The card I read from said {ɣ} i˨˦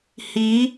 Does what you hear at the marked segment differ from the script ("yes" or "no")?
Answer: yes